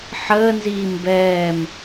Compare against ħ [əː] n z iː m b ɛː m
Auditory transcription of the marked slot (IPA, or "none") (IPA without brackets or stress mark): əː